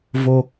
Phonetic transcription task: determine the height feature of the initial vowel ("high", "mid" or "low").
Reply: mid